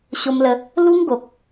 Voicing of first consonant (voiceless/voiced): voiceless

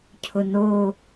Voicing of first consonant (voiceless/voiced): voiceless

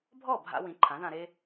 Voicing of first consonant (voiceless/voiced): voiced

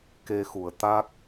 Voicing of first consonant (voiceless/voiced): voiceless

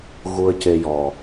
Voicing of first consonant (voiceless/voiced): voiced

